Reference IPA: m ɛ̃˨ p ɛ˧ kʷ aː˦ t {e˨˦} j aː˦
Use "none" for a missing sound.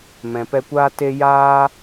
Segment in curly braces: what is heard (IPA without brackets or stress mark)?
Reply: e˦